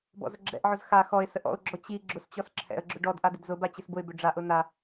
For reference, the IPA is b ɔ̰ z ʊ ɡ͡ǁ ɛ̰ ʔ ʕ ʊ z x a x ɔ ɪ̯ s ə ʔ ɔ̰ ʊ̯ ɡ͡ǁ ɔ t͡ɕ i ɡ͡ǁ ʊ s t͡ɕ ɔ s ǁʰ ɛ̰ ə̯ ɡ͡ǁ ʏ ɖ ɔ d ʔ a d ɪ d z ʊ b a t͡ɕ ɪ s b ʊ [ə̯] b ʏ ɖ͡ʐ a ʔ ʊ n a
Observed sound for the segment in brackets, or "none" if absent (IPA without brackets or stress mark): ɪ̯